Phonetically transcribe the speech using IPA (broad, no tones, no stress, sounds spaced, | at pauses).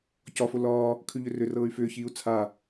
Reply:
c ɒ f o l ɒː | kʰ ʉ ʎ ʏ r ʏ r ɤː y̯ f ʏː ç iː u̯ t͡sʰ a